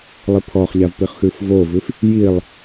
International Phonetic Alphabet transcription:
lˠipʰɔχʎavpiχ xʉfvovʉf | jilˠ

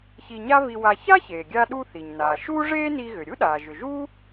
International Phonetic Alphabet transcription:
çi˧ɲa˥vi˧wa˧ ça˥çeː˩ɡʲa˧ɗu˧ θi˩ɲnaː˩ ʃuː˥ ʐeː˥ni˧ ɣʏ˩ ɾʲu˥ɗaː˩ ʒʏ˩ʒuː˥

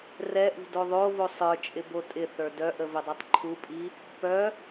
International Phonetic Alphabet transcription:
rɛʔṳd oðˤovo sˤə˞t͡ʃʼɪ botʼɪθə˞ dœʔə vɪdˤɛtˤǃʰupʼi | pœ

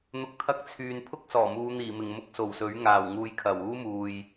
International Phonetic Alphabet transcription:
n̪ʊ˧k̚t̪ʰɐ˥k̚ t͡sʰyː˨npʰʊ˥k̚sɔː˨˩muː˨˧ n̪iː˨˩mɪ˨˩ŋmʊ˧k̚ so˨˩wsɵ˨˥ɥ ŋaː˨˩wŋuː˧jkʰɐ˨˩w uː˥muː˨j

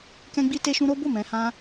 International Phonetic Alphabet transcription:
kɛ̃˦ɡ͡bi˦te˦ʃũ˦ ɾo˦ bo˦˨mɛ̃˧ hã˦

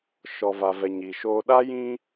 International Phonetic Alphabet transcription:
ʃɔ˨va˨vɛ˨ ɲi˨ʃoː˦ ɗa˦jĩ˦

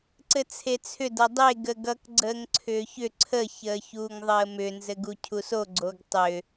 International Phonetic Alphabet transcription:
ǀɘt͡sʰet͡sʰʏ dʌdˤe ɡəɡʌk ɡ͡ǀəːŋǀʰʏːçʏ ǀʰə çəːçuːŋðˤəːmʏ nzɘɡucʰuso ɡ͡ǀoɡtˤʏ

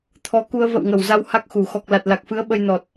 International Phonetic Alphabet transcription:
t̪ʰɔ˨˦ku˧ə̯ və̰˧˨wŋə˨˩wza˧w ha˦˥k̚xu˨˩ xɔ˨˩k̚la˨˩t̚la˨˩k̚fɨ˨˦ə̯ ɓə˧jnɔ˨˩t̚

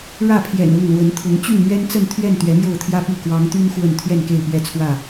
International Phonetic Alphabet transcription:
ɻä˥˨pʰjɛ̰˨˩n ʊ˥˨ŋlwə˨˦nt̪ʰʊ˨˦ŋ t͡ɕy˥˨nmɥɛ˦nt͡sə˥˨nt̪ʰɥɛ˥˨n t̪ɥɛ˨˦mjo˥˨ʊ̯t̪ʰjä˦pi˥˨ kwɑ˨˦ŋt̪y˦n xwə˥˨n t̪ʰɥɛ˥˨nke˥˨ɪ̯pɥɛ˥˨t͡sʰwä˥˨

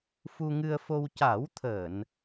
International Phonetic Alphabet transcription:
fu˧ŋɨ˧ə̯fo˧w ca˨˩˦wt̪ʰəː˨˩˨n

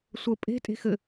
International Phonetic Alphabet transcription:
sʷə pʼe̤ tʼe̤xɘ

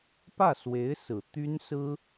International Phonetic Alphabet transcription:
pä˥˩swe˧˥ɪ̯sɹ̩˨˩ t̪y˥nsɹ̩˥

